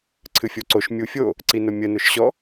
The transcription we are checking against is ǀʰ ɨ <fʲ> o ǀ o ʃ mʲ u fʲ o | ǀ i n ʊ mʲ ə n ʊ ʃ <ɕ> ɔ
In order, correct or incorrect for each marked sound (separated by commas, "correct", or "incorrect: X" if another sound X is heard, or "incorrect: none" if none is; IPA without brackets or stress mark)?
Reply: correct, correct